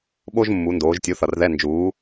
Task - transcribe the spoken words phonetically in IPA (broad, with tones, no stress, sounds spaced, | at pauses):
ɓ o˥ ʒ mː u˩˧ n d oː˩˧ ʒ tʲ u˩˥ θ ʌ˩ r ð ɛ˧˥˧ n d͡ʒ uː˩˥